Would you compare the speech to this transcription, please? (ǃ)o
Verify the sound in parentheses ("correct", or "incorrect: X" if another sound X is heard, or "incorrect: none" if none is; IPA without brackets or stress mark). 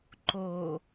correct